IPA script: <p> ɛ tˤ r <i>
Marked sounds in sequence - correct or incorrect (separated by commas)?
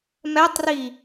incorrect, correct